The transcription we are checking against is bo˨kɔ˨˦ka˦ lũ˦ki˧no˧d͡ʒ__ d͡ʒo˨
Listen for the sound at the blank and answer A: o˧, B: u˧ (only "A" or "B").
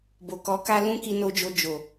A